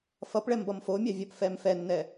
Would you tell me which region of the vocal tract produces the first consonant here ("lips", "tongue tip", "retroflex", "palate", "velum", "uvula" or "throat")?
lips